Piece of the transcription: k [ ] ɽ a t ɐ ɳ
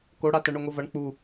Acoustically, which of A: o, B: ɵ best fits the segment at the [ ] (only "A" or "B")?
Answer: A